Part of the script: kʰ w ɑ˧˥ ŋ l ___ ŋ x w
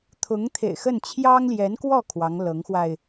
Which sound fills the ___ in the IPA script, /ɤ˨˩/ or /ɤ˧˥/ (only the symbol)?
ɤ˧˥